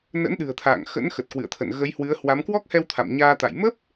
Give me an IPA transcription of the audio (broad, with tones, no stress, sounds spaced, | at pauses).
n ə̰˧˥ n ɗ ɨ̤˨˩ ə̯ t̪ʰ a̰ː˧˨ ŋ x ə̰˧˥ n x ə˨˩ t̚ k w ɨ̰˧˨ ə̯ t̪ʰ ə̰˧˨ n ɣ ə˨˦ j h w ɨ˨˦ ə̯ h w a˨˦ m k w ɔ˦˥ k̚ h ɛ˧ w t̪ʰ a̰˧˨ m ɲ aː˧ t̪ a̰˧˨ j m ə˦˥ p̚